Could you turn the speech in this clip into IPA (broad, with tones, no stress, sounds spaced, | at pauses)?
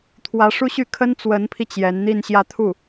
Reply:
t̪ʰ w ä˧˥ ʂ u˥ ɕ y˥˩ kʰ ə˥ n t͡s w ə˧˥ n pʰ i˧ t͡ɕ j ɛ˧˥ n n̪ i˥˧ n ɕ j ä˥˧ t̪ʰ u˥˩